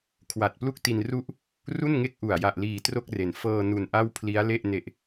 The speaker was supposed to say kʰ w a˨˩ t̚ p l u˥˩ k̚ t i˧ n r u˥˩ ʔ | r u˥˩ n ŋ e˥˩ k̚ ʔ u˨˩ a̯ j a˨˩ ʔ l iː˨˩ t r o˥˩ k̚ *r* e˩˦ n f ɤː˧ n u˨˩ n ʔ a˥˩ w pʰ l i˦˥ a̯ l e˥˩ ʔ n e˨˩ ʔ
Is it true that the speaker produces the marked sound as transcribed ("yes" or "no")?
yes